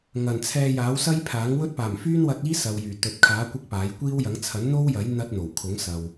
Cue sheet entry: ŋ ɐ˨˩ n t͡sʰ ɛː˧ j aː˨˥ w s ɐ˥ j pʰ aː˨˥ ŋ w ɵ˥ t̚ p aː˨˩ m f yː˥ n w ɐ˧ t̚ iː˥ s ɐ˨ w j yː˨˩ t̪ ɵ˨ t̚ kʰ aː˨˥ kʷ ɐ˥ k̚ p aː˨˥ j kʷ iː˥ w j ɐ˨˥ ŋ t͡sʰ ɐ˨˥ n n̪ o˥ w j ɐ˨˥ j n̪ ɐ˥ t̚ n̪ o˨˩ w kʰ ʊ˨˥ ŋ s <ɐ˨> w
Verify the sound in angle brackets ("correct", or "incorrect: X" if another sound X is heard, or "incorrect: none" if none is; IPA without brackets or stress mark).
correct